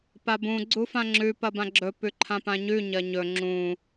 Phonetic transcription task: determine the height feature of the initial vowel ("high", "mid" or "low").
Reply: low